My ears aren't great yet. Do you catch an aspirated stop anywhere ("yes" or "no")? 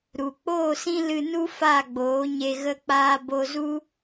no